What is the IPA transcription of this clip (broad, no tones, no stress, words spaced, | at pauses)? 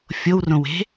fʲowrõwe̤